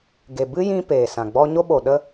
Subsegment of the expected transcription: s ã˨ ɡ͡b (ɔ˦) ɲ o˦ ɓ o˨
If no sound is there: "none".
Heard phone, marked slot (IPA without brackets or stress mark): ɔ˦